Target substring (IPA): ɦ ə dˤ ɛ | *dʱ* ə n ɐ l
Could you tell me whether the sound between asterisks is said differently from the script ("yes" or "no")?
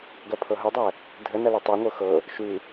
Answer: no